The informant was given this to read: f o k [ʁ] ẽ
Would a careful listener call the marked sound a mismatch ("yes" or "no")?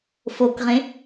no